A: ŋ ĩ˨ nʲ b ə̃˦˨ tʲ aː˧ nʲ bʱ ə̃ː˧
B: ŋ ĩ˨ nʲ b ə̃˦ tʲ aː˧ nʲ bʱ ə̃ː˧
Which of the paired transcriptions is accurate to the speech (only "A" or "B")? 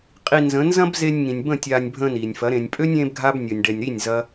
A